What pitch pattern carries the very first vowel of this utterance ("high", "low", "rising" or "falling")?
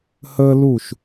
high